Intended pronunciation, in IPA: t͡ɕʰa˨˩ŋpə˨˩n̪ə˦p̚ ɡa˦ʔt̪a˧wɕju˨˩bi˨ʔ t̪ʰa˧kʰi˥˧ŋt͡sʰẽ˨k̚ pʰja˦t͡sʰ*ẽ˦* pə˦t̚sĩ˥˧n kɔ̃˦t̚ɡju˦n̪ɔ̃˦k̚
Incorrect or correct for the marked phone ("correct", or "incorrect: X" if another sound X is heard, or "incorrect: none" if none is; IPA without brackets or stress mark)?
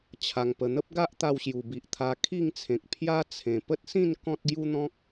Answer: incorrect: ẽ˨˩